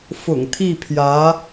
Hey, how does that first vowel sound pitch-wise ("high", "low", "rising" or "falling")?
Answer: low